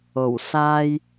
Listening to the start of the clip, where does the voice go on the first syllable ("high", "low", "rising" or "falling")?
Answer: low